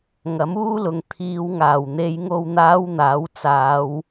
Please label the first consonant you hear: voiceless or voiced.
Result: voiced